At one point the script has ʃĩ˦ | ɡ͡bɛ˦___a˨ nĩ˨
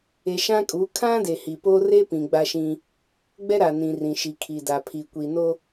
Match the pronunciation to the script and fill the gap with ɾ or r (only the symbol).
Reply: ɾ